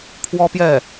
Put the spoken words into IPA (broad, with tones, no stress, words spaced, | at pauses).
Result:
pʰwɔ˥pjɛ˥˩